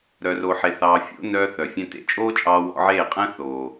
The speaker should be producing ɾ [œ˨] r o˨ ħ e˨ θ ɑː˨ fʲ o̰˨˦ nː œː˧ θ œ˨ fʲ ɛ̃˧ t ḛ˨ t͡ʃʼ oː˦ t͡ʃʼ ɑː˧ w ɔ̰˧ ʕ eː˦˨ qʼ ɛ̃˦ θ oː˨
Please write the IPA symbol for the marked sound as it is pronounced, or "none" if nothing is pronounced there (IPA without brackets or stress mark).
œ˨